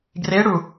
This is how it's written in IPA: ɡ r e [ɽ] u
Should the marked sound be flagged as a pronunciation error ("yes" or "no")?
no